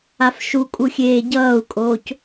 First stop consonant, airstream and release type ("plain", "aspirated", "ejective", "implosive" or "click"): ejective